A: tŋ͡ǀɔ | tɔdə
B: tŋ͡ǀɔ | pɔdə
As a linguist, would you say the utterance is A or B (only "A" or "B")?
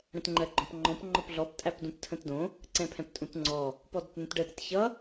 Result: B